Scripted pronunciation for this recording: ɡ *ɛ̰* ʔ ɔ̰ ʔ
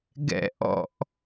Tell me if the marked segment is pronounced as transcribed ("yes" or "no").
yes